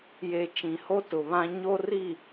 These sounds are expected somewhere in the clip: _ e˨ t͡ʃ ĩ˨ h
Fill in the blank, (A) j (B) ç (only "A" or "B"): A